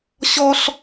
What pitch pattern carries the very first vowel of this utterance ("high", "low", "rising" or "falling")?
high